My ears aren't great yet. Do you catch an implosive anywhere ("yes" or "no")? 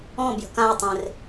no